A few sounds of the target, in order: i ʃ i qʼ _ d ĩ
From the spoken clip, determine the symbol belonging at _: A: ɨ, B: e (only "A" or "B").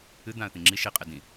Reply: B